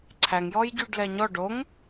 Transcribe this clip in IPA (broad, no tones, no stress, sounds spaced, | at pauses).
ǀʰ æ ŋ j ɔ j ɟ y ɖ l ɛ ɲ ɔ ɖ o ŋ